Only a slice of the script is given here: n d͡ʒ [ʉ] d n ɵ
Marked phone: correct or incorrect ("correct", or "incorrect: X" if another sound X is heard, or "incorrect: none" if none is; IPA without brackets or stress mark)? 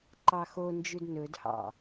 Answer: correct